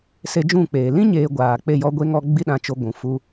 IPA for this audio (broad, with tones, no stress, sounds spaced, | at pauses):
s e˧ d͡ʒ ũ˦˨ k͡p eː˨ l ĩ˦ ɲ eː˨ ɡʷ aː˨ k͡p e˦˨ j ɔ˦ ɡʷ e˦ ŋ ɔ˦ ɡ͡b i˦ ɗ ã˧ t͡ʃ o˧ ɡʷ ũ˨ f u˦